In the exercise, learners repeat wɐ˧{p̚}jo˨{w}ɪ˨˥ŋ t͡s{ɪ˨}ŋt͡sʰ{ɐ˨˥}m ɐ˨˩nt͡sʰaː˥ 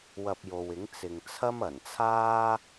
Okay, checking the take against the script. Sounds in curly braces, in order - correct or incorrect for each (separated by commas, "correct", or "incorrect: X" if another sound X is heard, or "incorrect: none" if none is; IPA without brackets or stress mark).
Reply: correct, correct, correct, incorrect: ɐ˥